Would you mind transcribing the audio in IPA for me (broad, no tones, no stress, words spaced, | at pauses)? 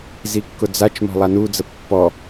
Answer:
zikːʊd͡zat͡ʃmɔ̤ lˠanud͡zə pːɔ